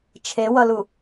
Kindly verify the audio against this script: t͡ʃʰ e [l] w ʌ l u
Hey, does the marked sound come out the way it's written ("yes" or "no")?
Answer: no